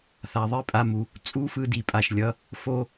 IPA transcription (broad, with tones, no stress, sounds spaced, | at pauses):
θ a˨ ðˤ i˦ pʼ a˧ m u˨ | t͡sʼ u˦ f ɯ˧ d i˨ pʼ a˨ ʃ lʲ ʌ˨˦ | f o˦